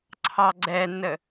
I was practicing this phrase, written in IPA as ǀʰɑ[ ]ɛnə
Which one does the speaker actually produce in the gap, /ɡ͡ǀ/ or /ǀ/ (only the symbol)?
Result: ɡ͡ǀ